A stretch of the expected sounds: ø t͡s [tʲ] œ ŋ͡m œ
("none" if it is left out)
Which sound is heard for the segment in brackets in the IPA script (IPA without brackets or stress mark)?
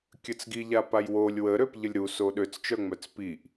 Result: t͡ʃ